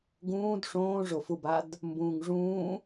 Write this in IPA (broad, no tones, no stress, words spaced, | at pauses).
ɡũːd ʂõːʐofubad | mbũːŋʐũː